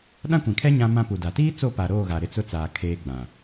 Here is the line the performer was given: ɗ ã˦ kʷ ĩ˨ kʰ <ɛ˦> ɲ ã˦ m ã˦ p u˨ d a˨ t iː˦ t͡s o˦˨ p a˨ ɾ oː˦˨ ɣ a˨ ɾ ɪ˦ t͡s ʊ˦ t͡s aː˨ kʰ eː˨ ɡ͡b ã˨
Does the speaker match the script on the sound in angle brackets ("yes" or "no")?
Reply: yes